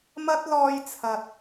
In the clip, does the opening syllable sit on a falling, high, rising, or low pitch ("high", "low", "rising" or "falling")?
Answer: high